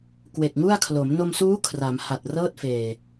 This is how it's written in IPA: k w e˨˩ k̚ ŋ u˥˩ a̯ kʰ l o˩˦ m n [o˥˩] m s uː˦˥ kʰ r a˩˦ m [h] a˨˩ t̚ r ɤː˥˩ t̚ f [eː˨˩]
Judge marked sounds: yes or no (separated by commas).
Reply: no, yes, yes